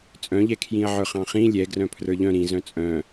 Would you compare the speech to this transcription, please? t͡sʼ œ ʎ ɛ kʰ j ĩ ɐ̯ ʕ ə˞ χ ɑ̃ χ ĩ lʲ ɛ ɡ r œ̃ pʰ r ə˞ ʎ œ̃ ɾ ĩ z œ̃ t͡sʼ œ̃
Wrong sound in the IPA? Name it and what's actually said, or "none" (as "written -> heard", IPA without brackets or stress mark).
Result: œ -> œ̃